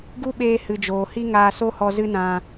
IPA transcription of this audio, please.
ɡ u˦ ɓ eː˧ h ɨ˨ d͡ʒ oː˨ h i˦ ŋ aː˧ s o˦ h ɔ˧ z ɨ˦ n ã˧

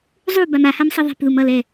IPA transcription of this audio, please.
zˤ u b a m a h a m sˤ ʌ ðˤ e̤ p ð u m ʌ l ɛ

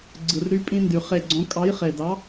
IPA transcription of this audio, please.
ɡ͡ǀ ɯ˩ r ɾ y˦ pʼ ĩ˦ n d y˩ χ e˧˩ ɡ͡ǀ õ˨˥ kʼ ɑ˨˥ j χ e˩ d ɑ˨˥

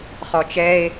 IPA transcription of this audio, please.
χ ɔ t͡ʃ ɛ e̯

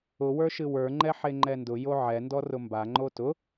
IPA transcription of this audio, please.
ʊ w ə˞ ʃ ɨ w ə˞ ŋ͡ǃ ɛ ħ e ŋ͡ǃ ɛ n d ʊ j o ʕ ɛ n d ɔ r ʊ m b a ŋ͡ǃ o t ʊ

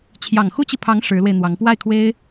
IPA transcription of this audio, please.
t͡ɕʰ j ɑ˨˩ ŋ x u˥ t͡ɕ i˨ pʰ ɑ˧˥ ŋ ʂ ɻ̩˧˥ l w e˧ ɪ̯ n̪ w ɑ˧˥ ŋ p w a˥˩ ɪ̯ kʰ w e˥ ɪ̯

